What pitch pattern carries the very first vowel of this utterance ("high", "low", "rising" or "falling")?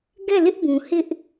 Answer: falling